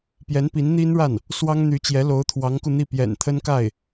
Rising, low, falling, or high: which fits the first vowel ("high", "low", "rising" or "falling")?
rising